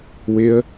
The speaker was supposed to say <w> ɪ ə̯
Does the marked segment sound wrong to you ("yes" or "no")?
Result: no